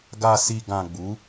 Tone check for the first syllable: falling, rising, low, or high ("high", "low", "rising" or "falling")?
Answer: low